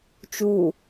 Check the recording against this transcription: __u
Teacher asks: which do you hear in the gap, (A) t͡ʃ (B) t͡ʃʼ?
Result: A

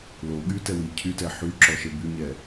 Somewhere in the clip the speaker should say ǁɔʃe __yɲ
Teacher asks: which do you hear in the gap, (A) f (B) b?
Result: B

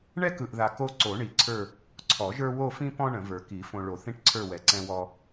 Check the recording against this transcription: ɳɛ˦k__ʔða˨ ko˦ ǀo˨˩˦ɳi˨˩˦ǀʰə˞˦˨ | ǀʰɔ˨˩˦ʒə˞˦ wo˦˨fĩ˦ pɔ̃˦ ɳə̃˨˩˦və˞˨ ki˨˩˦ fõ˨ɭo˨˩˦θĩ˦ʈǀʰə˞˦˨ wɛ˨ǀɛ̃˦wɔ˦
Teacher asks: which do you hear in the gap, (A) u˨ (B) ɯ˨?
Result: B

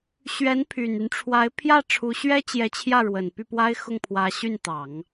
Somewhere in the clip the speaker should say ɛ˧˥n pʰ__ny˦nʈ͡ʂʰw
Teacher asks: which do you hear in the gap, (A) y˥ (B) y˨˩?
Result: B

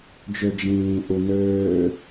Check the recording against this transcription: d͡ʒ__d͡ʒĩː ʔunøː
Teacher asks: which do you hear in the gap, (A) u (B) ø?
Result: B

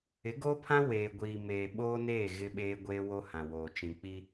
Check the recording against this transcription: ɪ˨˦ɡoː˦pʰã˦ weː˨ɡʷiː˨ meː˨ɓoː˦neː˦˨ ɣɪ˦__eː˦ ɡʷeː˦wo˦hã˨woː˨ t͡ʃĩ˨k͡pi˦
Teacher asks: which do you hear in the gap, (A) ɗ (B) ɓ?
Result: B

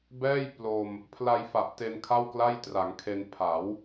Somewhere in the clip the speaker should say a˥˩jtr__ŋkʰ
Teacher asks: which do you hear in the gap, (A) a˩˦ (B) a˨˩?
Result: A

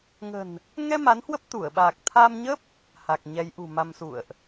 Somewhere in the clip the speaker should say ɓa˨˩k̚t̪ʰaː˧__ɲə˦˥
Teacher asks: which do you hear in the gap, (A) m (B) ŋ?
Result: A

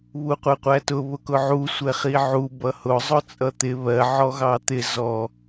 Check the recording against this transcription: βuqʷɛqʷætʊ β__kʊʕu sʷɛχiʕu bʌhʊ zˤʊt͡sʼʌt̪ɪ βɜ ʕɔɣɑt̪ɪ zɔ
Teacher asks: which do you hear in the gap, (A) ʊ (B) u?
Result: A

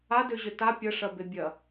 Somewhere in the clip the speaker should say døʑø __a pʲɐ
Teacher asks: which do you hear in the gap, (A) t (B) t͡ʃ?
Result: A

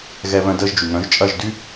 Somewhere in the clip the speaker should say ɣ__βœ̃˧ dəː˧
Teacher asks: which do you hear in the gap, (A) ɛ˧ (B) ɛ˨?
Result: A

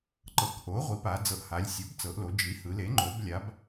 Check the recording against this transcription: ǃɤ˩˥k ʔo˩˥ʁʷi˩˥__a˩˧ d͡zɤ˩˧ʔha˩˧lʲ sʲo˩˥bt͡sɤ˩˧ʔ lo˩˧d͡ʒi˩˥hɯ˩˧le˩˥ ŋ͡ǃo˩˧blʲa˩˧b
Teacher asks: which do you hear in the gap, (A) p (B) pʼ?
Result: A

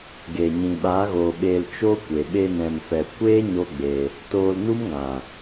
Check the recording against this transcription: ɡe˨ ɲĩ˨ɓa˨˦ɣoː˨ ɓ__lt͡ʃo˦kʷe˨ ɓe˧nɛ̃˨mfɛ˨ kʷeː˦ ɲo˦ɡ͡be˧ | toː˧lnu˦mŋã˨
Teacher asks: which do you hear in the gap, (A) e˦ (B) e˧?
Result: B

